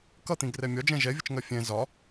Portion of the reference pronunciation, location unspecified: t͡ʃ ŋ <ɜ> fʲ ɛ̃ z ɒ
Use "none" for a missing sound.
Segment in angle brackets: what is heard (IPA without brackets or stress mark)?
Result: ɜ